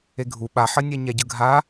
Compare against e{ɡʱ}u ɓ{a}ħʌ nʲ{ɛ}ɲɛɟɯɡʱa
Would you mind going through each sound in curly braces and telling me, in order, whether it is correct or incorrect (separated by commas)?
correct, correct, correct